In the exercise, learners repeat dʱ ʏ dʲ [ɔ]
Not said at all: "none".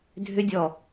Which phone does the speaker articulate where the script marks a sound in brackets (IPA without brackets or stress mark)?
ɔ